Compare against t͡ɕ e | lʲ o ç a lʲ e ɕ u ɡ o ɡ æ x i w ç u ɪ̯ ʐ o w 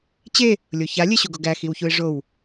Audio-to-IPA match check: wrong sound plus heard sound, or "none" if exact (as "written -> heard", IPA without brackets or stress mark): none